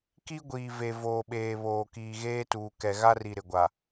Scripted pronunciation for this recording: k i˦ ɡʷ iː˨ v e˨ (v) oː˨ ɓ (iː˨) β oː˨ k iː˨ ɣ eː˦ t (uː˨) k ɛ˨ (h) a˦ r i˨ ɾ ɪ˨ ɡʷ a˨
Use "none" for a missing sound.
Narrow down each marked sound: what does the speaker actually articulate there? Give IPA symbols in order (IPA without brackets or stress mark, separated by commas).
v, eː˨, uː˨, ɣ